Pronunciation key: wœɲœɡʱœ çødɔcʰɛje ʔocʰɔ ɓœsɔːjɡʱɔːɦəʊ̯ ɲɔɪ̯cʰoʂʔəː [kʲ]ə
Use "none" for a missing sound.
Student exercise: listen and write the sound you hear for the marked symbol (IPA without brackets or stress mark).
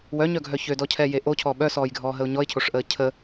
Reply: cʰ